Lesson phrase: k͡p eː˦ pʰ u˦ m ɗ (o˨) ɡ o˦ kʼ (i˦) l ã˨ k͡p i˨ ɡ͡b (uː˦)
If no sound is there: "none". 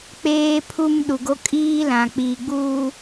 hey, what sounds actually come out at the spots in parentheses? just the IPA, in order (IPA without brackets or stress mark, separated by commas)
u˨, iː˦, uː˦